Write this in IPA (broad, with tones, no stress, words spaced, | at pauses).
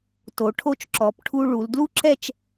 to˩˧ ʈʰo˧t͡ʃǁɔ˩˧pʈʰu˧ ɭu˩˧l dlu˥ǁɛ˥˧t͡ʃ